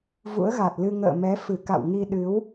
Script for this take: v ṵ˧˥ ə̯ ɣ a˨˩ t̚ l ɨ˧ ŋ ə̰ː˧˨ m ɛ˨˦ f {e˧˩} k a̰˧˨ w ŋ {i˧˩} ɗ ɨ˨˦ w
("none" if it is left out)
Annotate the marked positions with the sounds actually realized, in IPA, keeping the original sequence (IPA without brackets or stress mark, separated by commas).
ɨ˧˩, i˧